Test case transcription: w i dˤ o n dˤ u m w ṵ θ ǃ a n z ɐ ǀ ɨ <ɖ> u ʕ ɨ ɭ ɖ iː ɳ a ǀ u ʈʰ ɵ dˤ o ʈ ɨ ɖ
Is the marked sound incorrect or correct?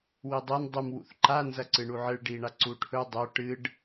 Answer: incorrect